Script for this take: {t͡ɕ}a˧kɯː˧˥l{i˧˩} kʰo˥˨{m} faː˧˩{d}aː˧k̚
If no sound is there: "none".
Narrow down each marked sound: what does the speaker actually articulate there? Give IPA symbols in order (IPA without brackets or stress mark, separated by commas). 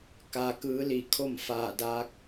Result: k, i˧˩, m, d